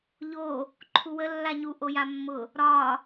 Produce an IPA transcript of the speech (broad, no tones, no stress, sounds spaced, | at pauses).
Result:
ʎ o | ǃʰ u w ə lː a ɲ u ʔ o j a mː ʊ | ɾ ɒ